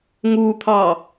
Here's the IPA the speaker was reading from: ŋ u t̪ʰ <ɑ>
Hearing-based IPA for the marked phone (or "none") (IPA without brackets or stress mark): ɑ